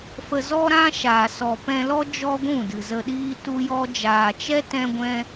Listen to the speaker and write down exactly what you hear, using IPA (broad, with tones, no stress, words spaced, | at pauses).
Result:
fə˧zɔ˦ ɾã˦ʃa˨ sɔ˨pɛ̃˧lɔ˦ d͡ʒɔ˦ɡʷũ˦˨dɨ˨zə˧ ɗiː˦tu˦jɔ˦ d͡ʒaː˨t͡ʃɛ˦ tɛ̃˧ɡʷɛ̃˧